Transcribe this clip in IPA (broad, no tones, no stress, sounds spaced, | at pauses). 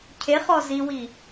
cʰ e χ ɔ z i w i